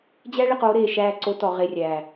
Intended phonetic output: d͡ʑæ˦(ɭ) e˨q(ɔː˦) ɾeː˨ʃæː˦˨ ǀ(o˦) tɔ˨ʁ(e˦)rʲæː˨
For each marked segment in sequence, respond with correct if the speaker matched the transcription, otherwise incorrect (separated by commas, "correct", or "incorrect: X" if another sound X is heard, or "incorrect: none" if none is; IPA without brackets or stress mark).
correct, incorrect: oː˦, correct, incorrect: e˦˨